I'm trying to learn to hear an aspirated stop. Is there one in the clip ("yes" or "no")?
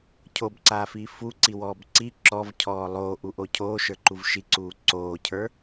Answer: yes